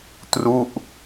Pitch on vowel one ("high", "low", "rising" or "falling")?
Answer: falling